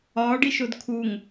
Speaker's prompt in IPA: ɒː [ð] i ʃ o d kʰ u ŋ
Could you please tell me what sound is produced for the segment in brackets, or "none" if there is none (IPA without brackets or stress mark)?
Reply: ɖ